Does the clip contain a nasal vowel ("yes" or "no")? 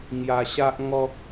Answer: no